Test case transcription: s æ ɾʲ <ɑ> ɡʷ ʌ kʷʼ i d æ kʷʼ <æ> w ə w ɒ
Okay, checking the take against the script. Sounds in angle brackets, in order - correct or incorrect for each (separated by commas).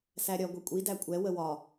incorrect, incorrect